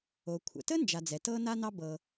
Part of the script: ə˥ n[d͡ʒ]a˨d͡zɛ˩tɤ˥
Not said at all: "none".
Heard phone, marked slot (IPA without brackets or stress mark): d͡ʒ